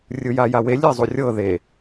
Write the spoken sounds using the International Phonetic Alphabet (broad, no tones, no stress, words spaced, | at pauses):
rʲɯjajawe lʲezˤurʲɤ ðe